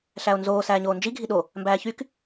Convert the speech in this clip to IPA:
ɬ æ o̯ n z oː s æː ɲ oː n d͡ʒ i ɡʱ i ɗ o | m b æː ç y k

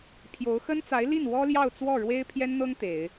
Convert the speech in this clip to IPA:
pʰ j o˧˥ ʊ̯ x ə˥ n t͡s a˧˥ ɪ̯ l i˥˩ n w ɔ˥ l j ɑ˥˧ ʊ̯ t͡s w ɔ˥˩ ɻ w e˥ ɪ̯ pʰ j ɛ˥ n n̪ ɤ˥ ŋ t̪ e˨˩˦ ɪ̯

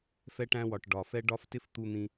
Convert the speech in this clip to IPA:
f ɛ˧ ʈ æ̃˧ w ɒ˨ ʈ ɖ ɒ˨ f ɛ˦ ɖ ɒ˦ f t ɪ˦ f t̪ u˧ n̪ ĩ˧

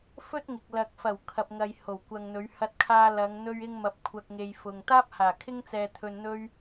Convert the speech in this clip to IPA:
f ɵ˥ t̚ ŋ ɪ˨ k̚ l ɐ˨ k̚ f ɐ˨˩ w kʰ ɐ˨ p̚ ŋ ɐ˨ j h o˨˩ w kʷ ɐ˨ ŋ n̪ ɵ˨˧ ɥ h ɐ˧ t̚ kʰ aː˧ l ɐ˨˧ ŋ n̪ ɵ˥ ɥ ɪ˥ ŋ m ɐ˧ p̚ kʷʰ ɐ˧ k̚ ŋ e˨ j f ʊ˨ ŋ t̪ aː˥ p̚ h aː˨˩ kʰ ɪ˥ ŋ t͡s ɛː˧ t̪ʰ ɵ˧ n n̪ ɵ˥ ɥ

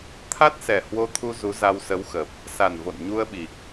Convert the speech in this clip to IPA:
t̪ʰ a˦˥ t̚ s ɛ˨˩ h w o˧ t̪ʰ u˧ z u˨˦ z a˧ w s ə˨˦ w x ə˨˩ p̚ | s a˨˩ n v o̰˧˨ n ɲ u˧ ə̯ ɓ i˨˩ k̚

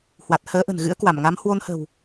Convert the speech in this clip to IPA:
h w a˨˩ t̚ h əː˨˦ ʔ ə̤˨˩ n ɣ ɨ̰˧˥ ə̯ k w a˧˩ m ŋ a˨˦ m h w o˧ n h ə̤˨˩ w

